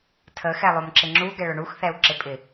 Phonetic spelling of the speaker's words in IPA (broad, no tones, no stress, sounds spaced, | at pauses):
tʰ ə x ɛ lˠ o m ǁ ɪ ŋ͡ǁ u ɡ ɛ ɭ ʊ ɳ u x θ ɛ u̯ ǁ ɪ pʼ ɪ